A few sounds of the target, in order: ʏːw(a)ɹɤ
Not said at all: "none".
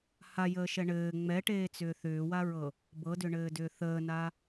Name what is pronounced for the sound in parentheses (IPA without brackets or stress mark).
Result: a